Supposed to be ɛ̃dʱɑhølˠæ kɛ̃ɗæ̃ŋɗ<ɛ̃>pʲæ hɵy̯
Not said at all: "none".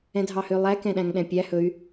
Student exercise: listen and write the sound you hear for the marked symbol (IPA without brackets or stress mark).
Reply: ɛ̃